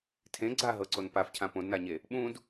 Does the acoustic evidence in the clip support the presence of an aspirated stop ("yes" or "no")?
yes